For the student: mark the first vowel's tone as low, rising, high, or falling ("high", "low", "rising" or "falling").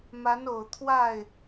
rising